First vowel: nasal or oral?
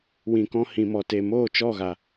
nasal